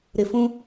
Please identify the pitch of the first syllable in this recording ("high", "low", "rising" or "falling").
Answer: low